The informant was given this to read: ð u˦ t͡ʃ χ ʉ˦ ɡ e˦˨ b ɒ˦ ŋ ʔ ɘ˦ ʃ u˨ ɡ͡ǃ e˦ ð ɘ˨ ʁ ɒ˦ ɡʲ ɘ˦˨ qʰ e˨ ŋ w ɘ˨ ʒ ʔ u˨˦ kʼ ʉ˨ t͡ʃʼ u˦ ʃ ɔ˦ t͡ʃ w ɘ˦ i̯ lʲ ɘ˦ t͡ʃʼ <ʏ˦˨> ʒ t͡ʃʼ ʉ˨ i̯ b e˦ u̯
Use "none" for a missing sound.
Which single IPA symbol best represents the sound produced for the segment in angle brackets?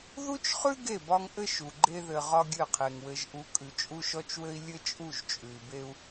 u˦˨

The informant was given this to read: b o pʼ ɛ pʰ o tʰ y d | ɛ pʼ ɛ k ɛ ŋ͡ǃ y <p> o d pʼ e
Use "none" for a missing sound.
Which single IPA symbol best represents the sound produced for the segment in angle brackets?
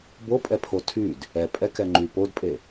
p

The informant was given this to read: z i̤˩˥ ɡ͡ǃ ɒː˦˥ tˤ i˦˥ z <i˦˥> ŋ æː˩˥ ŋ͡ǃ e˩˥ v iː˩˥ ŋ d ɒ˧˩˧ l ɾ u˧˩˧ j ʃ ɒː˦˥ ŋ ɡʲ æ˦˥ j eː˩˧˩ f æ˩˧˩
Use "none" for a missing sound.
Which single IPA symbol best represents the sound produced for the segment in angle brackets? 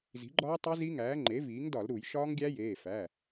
i˦˥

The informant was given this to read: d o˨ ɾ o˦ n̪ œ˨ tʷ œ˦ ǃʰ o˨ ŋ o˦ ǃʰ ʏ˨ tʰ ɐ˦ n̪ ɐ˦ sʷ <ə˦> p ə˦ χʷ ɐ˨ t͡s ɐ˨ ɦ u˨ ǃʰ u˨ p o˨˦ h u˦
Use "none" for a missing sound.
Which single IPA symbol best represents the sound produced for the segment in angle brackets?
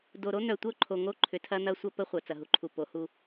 ɐ˦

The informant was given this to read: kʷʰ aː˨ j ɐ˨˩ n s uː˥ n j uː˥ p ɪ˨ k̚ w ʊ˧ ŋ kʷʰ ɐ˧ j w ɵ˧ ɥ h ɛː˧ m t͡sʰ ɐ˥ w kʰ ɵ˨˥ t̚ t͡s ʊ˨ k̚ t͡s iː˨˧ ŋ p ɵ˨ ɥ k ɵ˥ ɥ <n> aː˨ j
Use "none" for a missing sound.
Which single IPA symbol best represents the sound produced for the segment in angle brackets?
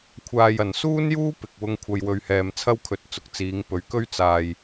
t͡s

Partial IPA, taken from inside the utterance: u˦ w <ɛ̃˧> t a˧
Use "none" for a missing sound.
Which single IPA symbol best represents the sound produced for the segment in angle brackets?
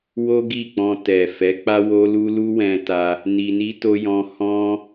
ɛ̃˧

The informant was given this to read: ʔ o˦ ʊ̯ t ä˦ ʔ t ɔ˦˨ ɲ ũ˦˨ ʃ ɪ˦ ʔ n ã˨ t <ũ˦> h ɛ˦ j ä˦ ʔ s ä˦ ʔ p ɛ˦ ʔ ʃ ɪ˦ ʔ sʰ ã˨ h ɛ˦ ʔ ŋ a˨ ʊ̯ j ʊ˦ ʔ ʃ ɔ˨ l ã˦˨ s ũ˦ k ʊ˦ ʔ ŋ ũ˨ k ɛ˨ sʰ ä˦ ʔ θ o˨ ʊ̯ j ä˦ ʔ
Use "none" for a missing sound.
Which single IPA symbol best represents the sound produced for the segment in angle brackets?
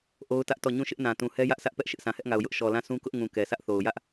ũ˨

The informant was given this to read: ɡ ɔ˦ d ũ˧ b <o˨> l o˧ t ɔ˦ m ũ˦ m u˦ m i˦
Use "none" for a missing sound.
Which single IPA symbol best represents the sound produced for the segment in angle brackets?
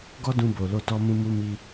o˨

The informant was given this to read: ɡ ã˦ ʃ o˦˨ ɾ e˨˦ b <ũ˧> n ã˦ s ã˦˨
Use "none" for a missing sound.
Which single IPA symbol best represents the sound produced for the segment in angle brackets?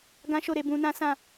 ũ˧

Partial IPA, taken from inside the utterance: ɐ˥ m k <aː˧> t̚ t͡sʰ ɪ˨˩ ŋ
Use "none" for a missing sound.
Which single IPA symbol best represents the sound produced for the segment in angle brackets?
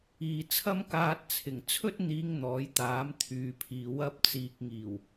aː˧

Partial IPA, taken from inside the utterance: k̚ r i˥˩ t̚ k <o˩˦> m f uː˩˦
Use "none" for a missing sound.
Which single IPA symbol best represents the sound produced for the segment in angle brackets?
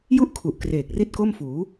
o˥˩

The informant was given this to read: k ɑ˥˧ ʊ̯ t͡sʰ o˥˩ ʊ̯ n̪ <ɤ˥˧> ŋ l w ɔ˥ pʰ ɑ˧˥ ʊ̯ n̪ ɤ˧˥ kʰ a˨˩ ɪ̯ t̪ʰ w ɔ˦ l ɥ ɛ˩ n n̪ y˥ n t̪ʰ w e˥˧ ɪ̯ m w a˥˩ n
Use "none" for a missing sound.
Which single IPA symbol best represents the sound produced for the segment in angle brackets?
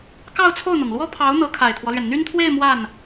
ɤ˩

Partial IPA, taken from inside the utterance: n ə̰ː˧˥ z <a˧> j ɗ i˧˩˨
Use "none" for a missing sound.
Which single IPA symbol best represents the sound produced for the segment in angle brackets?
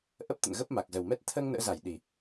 a˧˩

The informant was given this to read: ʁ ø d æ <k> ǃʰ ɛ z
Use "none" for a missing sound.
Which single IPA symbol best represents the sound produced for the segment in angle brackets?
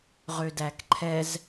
k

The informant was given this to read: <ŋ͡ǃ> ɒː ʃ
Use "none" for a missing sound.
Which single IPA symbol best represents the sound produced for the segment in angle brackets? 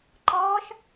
ǃ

